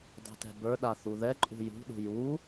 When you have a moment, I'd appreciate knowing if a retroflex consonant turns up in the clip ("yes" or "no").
no